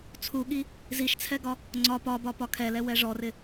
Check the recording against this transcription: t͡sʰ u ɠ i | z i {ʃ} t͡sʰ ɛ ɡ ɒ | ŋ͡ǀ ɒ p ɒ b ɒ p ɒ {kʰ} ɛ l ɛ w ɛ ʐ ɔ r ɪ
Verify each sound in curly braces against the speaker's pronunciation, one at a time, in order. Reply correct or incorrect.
correct, correct

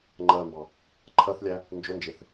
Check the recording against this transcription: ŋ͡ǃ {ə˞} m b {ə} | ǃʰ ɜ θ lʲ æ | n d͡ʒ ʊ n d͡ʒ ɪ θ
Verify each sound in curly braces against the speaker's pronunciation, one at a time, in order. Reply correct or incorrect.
incorrect: ɜ, incorrect: ɑ

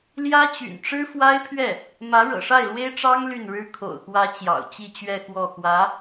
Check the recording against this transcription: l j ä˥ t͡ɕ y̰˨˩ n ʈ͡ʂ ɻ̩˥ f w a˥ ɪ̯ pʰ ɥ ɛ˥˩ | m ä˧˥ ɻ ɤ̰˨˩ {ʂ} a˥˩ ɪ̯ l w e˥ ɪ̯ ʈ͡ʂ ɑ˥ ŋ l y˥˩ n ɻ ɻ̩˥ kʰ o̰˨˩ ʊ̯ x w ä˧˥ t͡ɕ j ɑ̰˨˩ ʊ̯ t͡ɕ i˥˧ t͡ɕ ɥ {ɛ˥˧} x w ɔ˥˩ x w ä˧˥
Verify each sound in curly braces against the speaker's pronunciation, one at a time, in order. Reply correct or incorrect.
correct, correct

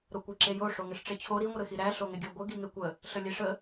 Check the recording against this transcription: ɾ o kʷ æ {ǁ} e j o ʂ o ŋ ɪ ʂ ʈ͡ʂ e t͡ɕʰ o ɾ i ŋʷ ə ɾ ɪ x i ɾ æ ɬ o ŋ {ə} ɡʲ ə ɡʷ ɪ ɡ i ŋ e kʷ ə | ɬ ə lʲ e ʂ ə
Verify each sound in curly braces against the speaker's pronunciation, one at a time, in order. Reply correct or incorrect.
correct, incorrect: ɪ

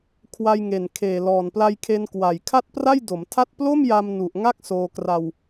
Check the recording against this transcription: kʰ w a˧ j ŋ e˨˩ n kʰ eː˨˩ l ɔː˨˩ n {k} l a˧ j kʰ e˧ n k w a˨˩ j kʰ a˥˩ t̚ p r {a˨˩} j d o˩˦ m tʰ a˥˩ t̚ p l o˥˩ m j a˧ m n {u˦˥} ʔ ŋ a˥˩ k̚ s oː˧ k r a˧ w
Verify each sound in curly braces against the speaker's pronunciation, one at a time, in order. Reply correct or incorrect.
incorrect: p, incorrect: a˥˩, incorrect: u˨˩

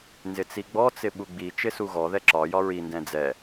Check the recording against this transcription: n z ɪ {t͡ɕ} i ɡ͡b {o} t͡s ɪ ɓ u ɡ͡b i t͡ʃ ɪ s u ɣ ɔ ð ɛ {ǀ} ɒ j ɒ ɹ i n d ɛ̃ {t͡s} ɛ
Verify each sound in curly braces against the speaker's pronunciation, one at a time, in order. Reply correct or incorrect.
incorrect: t͡s, incorrect: ɔ, incorrect: ǁ, incorrect: d͡z

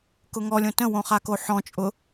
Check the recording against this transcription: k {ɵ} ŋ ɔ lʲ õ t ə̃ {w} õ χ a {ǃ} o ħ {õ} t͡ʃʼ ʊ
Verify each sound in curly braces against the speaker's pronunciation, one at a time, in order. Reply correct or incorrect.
incorrect: ʊ, correct, incorrect: k, incorrect: ɔ̃

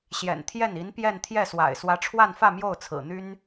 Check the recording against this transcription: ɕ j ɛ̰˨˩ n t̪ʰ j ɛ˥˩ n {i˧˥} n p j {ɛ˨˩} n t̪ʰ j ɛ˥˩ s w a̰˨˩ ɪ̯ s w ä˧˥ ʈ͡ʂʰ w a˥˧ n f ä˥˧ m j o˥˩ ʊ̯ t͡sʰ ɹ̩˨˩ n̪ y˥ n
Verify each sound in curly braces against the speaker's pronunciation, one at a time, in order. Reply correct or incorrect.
correct, incorrect: ɛ˥˧

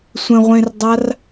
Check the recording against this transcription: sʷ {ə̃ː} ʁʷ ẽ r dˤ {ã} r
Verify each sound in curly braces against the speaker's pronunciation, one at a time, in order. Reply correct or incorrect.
incorrect: ə̃, incorrect: a

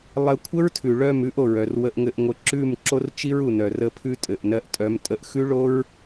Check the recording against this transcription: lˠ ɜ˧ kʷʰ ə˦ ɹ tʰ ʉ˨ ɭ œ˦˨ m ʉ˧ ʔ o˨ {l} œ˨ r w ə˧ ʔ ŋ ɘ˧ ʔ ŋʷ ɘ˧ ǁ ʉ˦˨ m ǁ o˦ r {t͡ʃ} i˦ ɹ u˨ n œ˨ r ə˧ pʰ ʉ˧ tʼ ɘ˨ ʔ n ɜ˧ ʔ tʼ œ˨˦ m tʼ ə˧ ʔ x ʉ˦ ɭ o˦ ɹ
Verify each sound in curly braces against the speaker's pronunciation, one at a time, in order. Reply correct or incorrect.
incorrect: ɹ, correct

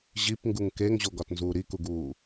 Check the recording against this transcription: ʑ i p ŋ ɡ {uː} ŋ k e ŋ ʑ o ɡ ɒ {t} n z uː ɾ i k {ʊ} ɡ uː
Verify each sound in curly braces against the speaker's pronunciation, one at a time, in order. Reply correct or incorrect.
incorrect: u, correct, incorrect: u

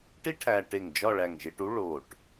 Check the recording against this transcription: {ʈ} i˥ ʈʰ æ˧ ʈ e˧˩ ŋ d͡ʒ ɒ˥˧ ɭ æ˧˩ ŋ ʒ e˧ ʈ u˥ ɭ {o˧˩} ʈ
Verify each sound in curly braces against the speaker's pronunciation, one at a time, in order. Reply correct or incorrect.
correct, correct

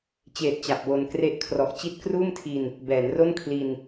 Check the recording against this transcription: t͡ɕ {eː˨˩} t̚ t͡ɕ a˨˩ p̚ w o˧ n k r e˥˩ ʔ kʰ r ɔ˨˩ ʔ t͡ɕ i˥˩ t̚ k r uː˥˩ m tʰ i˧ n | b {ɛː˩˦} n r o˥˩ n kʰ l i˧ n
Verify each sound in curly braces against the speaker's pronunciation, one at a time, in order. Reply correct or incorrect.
correct, correct

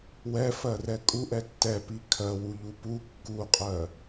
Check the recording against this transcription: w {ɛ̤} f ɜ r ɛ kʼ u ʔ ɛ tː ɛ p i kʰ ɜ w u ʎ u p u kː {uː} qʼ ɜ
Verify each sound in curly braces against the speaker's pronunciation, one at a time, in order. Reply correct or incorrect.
incorrect: ɛ, incorrect: u

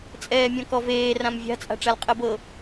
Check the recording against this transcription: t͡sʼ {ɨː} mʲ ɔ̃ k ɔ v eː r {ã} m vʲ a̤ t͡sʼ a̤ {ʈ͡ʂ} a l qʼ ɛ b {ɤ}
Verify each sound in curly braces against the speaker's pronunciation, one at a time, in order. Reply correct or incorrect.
incorrect: ɛː, correct, correct, correct

